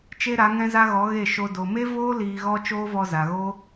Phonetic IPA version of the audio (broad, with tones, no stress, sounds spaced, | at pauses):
t͡ʃ e˦ ɾ a˨˦ ŋ ɛ̃˦ z a˦ ɣ ɔ˨˦ ɣ e˦˨ ʃ o˧ d o˨ m e˦ v oː˦ l iː˧ ɣ ɔ˦ t͡ʃ oː˦ v ɔ˧ z a˨ ɣ o˦